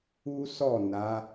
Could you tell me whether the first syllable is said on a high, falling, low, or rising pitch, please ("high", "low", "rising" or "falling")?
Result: high